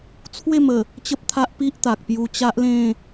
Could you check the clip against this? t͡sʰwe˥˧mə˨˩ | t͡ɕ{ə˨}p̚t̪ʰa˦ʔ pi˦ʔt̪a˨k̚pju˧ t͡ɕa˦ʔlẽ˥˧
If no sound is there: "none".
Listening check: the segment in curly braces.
ə˦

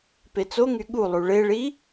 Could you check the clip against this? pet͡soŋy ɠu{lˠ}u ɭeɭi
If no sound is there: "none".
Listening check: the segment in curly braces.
lˠ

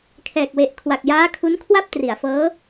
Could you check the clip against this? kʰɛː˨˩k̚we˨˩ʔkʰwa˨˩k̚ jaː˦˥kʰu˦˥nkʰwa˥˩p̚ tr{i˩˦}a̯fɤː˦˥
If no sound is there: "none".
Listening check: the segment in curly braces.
i˩˦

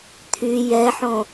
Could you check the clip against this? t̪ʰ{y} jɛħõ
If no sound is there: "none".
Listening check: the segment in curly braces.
y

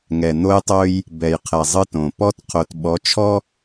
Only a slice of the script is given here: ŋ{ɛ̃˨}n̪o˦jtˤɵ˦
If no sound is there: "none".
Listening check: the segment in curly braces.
ɛ˨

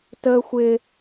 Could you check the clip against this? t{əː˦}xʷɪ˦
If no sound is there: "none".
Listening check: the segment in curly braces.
əː˦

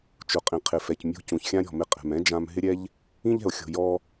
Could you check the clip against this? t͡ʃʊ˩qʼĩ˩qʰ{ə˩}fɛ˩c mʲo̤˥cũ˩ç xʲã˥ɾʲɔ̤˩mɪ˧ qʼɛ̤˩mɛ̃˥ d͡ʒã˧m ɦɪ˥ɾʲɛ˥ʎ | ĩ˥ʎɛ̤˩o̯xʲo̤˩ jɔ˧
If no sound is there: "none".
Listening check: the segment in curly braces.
ɪ˩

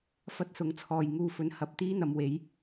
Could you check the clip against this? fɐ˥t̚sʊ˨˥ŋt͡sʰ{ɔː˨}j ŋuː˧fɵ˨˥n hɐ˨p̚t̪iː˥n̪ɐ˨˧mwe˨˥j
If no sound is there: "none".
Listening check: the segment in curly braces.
ɔː˨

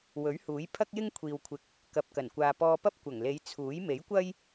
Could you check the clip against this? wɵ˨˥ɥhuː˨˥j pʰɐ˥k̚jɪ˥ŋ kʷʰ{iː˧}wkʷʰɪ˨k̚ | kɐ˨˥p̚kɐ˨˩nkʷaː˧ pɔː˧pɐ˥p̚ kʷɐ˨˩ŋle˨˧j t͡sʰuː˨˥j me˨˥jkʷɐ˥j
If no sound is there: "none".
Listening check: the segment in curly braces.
iː˨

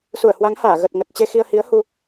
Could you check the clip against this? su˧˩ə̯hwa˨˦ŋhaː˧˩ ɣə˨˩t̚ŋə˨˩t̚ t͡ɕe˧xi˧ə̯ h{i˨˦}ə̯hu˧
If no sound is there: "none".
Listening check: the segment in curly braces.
i˨˦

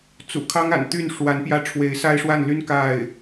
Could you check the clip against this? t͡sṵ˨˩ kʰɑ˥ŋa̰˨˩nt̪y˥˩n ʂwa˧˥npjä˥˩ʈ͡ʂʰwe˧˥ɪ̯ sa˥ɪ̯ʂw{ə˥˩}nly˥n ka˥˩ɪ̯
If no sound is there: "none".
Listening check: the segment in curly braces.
a˥˩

